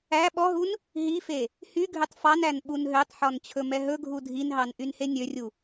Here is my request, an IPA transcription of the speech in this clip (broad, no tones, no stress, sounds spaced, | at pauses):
æ ɓ ɔ ɦ u n | ɦ i f e | h y ɡʱ ø tˤ f ɑ n æ n ɓ u n ɦ ø tˤ ħ ɔ n t͡ɕʰ ɵ m ɛ ɦ ɵ ɡʱ u dʱ i n ɦ ɑ n ʔ y n h e nʲ ø rʲ u